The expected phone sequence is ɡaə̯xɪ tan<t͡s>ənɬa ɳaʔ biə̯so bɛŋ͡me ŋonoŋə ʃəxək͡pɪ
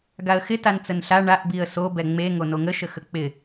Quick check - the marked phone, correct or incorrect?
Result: correct